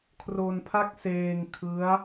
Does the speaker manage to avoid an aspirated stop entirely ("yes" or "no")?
no